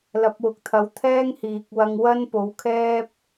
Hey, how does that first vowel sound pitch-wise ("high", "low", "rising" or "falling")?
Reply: rising